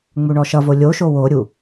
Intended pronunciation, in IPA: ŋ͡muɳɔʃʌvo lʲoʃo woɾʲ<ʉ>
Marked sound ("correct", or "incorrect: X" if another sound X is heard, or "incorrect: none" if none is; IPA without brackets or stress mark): incorrect: u